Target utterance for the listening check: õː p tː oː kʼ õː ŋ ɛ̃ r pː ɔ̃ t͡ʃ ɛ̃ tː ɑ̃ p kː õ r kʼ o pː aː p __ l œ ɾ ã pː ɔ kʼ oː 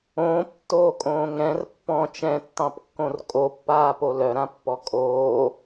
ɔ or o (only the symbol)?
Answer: o